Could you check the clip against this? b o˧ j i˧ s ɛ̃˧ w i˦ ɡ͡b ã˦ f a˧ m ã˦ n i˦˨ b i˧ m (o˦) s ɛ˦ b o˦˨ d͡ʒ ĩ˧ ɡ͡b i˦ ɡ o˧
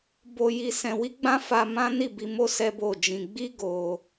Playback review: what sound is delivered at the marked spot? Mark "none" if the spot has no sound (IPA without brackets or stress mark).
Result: o˦